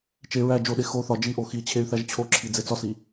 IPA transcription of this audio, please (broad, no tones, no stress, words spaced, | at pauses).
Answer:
t͡ʃe ɹæ d͡ʒoɗe xo θɒ d͡ʒiʔo xi t͡ɕʰey̯θæʒt͡ɕʰoǁʰi d͡zet͡sɒsi